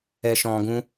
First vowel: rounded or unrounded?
unrounded